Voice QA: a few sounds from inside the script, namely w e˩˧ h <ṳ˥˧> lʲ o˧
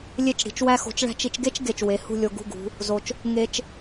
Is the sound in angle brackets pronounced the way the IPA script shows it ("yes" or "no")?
yes